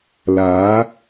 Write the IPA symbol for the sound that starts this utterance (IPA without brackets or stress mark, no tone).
l